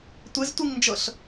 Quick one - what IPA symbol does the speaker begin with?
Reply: tʷ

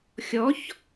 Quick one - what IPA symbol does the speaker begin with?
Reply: xʲ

